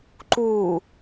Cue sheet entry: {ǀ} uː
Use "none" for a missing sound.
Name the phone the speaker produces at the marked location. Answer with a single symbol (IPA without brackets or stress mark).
ǃ